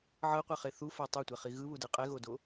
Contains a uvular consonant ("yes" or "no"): yes